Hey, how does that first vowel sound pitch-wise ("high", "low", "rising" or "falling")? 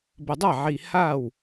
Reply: low